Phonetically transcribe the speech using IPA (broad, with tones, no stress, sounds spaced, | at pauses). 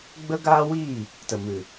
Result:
ɡ͡b ə˦ ɡ aː˦ w iː˦˨ | t ə˨ m ɨ˨